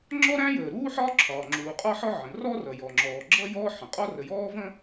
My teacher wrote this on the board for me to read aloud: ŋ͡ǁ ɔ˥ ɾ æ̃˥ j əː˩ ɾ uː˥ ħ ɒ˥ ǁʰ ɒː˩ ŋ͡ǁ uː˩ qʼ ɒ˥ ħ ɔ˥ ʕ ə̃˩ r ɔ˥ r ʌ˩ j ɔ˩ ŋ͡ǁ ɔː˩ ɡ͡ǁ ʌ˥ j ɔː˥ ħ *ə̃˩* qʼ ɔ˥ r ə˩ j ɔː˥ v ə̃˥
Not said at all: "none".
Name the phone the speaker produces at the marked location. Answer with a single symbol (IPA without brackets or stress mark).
ə̃˩